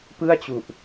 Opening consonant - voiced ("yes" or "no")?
no